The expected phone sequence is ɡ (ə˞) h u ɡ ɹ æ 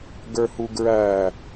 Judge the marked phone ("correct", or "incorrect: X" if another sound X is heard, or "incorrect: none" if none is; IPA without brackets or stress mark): correct